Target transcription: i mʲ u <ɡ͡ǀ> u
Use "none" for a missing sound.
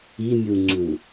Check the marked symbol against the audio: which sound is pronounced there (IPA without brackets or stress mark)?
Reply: ŋ͡ǀ